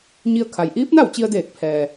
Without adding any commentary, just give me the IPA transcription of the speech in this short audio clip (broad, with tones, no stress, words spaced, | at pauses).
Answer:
ɲi˧ə̯kʰa˩j ʔiː˧˥p̚na˥˨wt͡ɕi˧ə̯deː˧˩k̚ pʰɛː˩